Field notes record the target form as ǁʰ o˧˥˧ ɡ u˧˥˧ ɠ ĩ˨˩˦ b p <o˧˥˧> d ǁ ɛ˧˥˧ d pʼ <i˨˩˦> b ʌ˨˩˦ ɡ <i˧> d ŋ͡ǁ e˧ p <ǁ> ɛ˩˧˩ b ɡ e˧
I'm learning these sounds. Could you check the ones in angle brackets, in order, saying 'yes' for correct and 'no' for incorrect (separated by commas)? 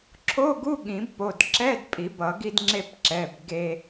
no, yes, yes, yes